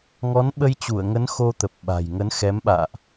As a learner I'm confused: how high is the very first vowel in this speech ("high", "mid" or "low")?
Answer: mid